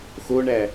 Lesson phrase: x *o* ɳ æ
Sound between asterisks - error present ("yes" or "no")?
no